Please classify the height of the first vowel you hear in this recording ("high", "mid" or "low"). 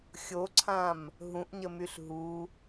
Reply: mid